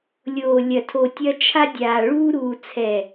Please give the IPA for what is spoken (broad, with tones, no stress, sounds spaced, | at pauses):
lʲ oː˨ lʲ ɐ˨ tʰ o˨ tʲ ɐ˦ t͡ʃʰ a˦ dʲ aː˨ ɭ uː˦ ɾ uː˨ t͡sʰ ɛ˨